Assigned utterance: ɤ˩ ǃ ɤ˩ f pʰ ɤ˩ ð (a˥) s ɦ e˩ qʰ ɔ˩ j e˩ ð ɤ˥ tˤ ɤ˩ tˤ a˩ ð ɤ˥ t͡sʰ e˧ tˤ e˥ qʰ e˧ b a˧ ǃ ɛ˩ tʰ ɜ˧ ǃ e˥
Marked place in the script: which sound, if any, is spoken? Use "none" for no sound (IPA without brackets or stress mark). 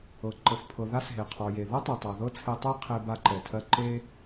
a˥